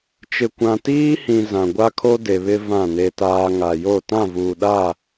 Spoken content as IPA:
t͡ʃ ɪ˨ kʷ ã˨ t iː˦ h ĩ˨ z ã˨ ɡʷ a˦ kʰ o˦ d e˨ β ɪ˦ v ã˦˨ n e˦ t aː˦ ŋ a˨ j o˦˨ t ã˦˨ v uː˨ ɗ a˦˨

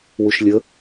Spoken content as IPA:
w u ʃ lʲ ə

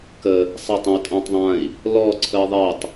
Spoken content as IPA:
k ə | sˤ a tˤ ə̃ u̯ tʼ ã tˤ ðˤ ã i̯ | l ɔ ǀʰ ə i̯ ðˤ ɛ tˤ

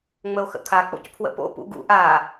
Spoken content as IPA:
ŋ͡m ə o̯ x ə̰ kʰ a k͡p o̰ c pʰ w ə̰ p o̰ p ṵ ɡ ṵ ʔ a

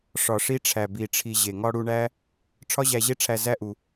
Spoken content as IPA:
ʂ ɒ˨ ʂ i˧ ʈ͡ʂʰ æ˨ b i˨ ʈ͡ʂʰ i˨ ʑ e˨ ŋ ɒ˧ ɽ u˧ ɳ æ˦ | ʈ͡ʂʰ ɒ˦ ʑ æ˧ ʑ e˦ ʈ͡ʂʰ æ˧ z æ˦ ʔ u˧

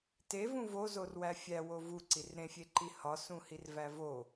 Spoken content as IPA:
t e v ũ v o z o r w æ fʲ æ w o v u ǀ i r ɾ ẽ fʲ e ǃ i h ɒ s ũ h i r v æ v o

